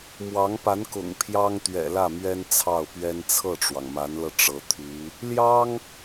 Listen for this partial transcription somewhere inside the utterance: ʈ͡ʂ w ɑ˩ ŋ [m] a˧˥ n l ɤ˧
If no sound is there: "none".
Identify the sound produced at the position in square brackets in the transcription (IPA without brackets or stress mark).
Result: m